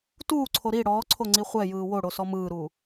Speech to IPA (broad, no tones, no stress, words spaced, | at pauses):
tuːǀʰo ɾi ɽɔːǀʰoŋ͡ǀi χʷɛjɯː woɽosɔ mɯːɾuː